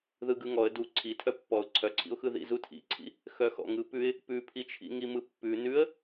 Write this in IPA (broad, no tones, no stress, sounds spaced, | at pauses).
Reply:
ð ɯ ɡ ɯ ŋ ɔ ə̯ d u ǀʰ i tʰ œ pː ɔ ʊ̯ ǀʰ œ ǀʰ ḭ ʊ̯ x ɯ ð ḭ z u tʰ ḭ ǀʰ ḭ | x œ x ɔ̰ ŋ ɯ p ʉ ɪ̯ | p ʉ pʰ i t͡ʃʰ ḭ ŋ i m ɯ pː ʉ n ʉ ə̯